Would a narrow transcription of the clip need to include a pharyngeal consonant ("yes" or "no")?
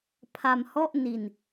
no